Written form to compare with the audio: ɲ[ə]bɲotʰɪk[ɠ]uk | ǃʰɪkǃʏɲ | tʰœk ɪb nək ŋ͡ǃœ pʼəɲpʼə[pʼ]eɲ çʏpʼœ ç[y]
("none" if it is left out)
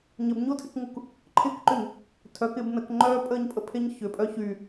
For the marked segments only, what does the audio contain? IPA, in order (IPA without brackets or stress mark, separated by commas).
ə, ŋ, pʰ, y